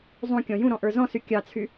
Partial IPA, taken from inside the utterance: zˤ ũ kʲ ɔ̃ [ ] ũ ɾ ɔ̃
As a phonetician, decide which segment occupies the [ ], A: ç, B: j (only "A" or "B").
B